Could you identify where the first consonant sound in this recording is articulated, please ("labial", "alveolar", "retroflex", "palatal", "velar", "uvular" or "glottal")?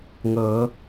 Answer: velar